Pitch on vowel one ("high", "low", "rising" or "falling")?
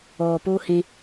low